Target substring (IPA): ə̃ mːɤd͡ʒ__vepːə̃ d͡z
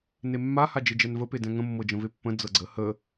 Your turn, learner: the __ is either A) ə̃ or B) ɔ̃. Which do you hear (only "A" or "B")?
A